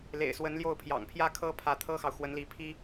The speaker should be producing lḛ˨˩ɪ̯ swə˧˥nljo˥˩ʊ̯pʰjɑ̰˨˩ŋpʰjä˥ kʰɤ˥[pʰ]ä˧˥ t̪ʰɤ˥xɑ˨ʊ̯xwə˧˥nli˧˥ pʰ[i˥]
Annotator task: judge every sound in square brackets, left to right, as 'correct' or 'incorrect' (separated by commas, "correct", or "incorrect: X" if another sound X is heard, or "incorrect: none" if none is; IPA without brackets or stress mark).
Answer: correct, correct